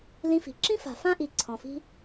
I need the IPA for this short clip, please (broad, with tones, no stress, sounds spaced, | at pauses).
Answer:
l ĩ˧ f i̤˨ ǁ ĩ˦ f a̤˨ f ã˦ ʔ i˨ ǀʰ ɔ̃˨ f i̤˦